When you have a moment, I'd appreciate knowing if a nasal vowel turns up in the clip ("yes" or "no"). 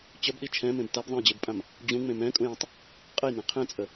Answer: yes